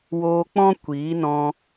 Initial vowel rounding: rounded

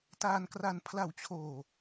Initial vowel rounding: unrounded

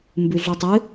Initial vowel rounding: rounded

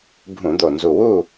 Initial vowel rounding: rounded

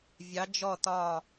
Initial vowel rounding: unrounded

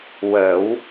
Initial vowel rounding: unrounded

